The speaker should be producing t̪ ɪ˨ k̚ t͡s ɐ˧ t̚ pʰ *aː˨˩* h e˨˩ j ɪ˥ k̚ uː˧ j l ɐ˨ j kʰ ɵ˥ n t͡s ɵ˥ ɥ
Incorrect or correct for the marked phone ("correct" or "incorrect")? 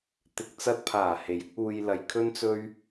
correct